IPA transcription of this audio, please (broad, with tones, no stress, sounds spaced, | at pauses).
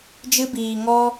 d͡ʒ ɨ˧ b iː˨ ŋ ɔ˧